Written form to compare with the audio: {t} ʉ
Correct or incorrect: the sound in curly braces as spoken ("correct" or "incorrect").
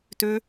correct